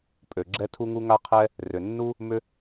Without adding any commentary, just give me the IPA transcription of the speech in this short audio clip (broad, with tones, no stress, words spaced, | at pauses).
pʼø˩ɡ͡ǁɛ˥ tʰu˥ŋu˥ ŋa˥qʰɛ˥ | rʏ˩nːu˥ | mʏ˥